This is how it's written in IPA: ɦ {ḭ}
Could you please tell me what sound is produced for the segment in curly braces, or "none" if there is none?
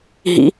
ḭ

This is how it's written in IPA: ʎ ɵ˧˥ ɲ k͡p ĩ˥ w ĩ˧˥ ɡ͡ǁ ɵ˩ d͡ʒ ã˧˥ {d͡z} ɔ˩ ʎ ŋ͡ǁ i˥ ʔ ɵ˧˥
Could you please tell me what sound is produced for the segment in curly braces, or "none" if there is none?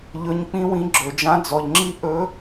d͡z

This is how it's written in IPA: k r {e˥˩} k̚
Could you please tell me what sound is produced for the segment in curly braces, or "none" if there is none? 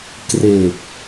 e˨˩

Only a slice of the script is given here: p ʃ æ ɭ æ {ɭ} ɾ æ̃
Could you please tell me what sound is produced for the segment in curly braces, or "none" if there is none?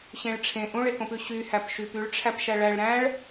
ɭ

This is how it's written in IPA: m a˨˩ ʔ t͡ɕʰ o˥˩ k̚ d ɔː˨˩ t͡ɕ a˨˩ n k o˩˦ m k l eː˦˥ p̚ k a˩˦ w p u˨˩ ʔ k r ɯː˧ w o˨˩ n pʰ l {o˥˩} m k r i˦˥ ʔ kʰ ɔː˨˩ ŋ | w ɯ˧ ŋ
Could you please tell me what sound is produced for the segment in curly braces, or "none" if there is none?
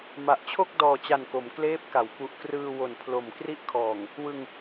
o˨˩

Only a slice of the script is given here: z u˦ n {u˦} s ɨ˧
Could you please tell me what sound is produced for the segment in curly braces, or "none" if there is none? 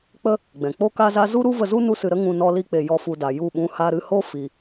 u˦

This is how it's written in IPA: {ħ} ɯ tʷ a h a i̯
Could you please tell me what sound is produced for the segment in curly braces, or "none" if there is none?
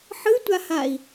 ħ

